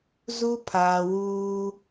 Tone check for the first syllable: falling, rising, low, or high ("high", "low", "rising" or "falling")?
high